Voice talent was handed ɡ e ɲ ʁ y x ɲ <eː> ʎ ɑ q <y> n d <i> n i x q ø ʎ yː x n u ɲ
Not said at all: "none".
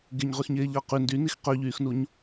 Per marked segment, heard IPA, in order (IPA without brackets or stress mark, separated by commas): eː, y, y